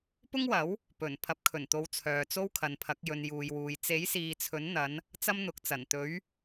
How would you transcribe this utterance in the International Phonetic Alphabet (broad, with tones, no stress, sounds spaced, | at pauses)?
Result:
p ʊ˥ ŋ w ɐ˨˥ w | p ɵ˨˩ n pʰ ɐ˨˥ p̚ kʰ ɵ˨˩ n t̪ o˨˧ w t͡sʰ œː˨ t͡s o˥ w kʰ ɐ˨ n pʰ ɐ˨˥ k̚ j ɵ˨ n j uː˨ j w uː˨ j t͡s e˨˥ j s iː˨ t͡sʰ ɵ˨˥ n n̪ ɐ˨˧ n | t͡s ɐ˥ m n̪ ʊ˨˥ k̚ t͡s ɐ˨˩ n t̪ ɵ˨˧ ɥ